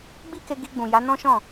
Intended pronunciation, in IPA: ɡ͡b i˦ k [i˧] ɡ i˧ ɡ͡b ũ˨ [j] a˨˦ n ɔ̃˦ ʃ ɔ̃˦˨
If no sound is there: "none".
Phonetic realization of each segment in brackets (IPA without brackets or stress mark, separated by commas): e˧, j